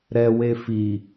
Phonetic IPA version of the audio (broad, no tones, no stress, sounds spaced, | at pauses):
ɾ ɛ w e f i